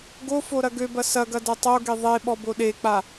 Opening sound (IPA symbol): ɡ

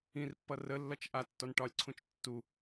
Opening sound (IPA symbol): ĩ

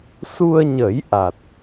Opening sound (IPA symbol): s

